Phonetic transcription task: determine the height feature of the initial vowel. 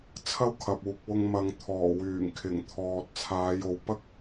low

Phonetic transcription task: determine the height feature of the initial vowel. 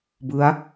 high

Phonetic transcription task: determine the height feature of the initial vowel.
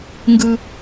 high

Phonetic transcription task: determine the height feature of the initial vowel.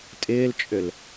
high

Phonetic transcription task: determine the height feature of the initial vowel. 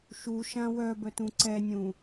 high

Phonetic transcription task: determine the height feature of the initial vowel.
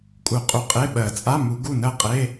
high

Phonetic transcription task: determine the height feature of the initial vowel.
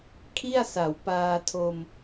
high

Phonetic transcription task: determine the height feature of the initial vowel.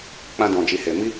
low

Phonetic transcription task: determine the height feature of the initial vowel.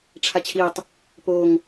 low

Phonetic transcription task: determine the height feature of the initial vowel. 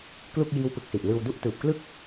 high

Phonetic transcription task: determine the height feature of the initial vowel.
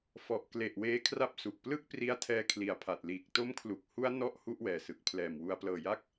mid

